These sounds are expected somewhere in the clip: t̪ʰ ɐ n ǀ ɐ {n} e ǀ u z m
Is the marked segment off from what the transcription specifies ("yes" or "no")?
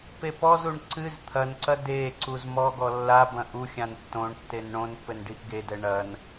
yes